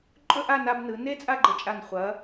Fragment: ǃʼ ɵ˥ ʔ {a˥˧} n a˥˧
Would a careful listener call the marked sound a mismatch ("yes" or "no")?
no